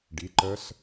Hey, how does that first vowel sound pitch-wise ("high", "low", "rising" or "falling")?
rising